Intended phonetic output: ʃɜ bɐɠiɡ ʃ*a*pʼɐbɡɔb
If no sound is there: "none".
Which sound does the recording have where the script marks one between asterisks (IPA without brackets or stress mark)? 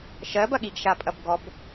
a